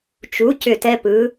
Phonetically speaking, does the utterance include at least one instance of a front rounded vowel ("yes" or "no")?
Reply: yes